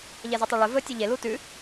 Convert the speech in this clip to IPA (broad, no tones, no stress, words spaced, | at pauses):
ʎɛzotˤoɭɵ vɵ tʲʉʎe lutʉ